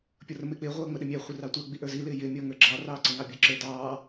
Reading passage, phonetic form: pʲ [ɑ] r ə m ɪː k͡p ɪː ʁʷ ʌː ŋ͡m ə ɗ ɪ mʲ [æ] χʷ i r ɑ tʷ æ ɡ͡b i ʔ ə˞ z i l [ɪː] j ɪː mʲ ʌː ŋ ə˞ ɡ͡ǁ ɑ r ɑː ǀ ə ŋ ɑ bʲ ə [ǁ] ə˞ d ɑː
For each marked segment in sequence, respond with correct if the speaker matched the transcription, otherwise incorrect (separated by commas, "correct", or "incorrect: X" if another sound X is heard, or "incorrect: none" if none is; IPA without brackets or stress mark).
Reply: incorrect: ʌ, correct, correct, correct